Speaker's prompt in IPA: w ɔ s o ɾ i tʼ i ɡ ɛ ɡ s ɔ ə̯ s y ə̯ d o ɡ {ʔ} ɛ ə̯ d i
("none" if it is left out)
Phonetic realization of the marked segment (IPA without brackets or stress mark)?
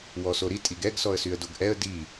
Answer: ʔ